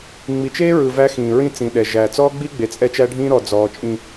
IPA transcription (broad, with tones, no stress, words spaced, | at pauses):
ŋ͡mi˨t͡ʃeː˦ ɹɯ˨ væ˦xĩː˨ ɹĩ˦t͡sĩː˨ɗɛ˨ʒæ˨ t͡sɔː˦ɡ͡bi˦ ɡ͡be˨t͡sʼɛ˦t͡ʃæ˦ɖʱĩː˦ ɾɔ˨ d͡zɔː˨t͡ʃʼĩ˨